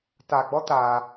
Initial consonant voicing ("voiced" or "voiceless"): voiceless